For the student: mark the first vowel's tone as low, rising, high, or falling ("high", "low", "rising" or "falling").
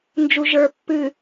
low